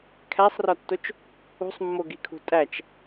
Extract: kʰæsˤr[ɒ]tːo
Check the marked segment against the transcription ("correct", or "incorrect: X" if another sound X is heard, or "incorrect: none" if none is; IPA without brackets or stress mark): correct